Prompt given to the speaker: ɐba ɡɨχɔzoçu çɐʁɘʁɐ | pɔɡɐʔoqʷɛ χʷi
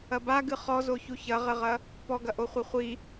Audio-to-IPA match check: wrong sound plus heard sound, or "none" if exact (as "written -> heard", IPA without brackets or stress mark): qʷ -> χʷ